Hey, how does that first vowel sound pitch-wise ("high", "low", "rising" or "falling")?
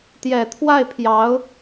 low